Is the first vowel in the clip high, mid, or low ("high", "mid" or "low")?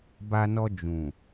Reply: low